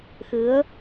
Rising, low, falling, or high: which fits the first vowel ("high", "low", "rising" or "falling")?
rising